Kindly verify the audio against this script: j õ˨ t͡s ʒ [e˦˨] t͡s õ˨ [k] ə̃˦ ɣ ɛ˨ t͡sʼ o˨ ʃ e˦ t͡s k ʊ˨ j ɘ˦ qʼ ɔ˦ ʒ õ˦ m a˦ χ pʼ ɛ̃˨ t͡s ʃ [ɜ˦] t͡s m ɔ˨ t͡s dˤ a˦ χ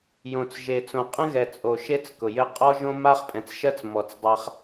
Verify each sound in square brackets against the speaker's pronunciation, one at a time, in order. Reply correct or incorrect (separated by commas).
incorrect, incorrect, correct